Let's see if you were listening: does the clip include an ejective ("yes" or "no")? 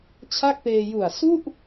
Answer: no